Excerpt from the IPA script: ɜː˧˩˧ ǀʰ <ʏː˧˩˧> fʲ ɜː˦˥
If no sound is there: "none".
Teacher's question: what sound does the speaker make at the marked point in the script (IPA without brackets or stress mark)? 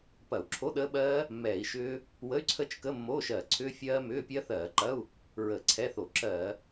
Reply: ʏː˦˥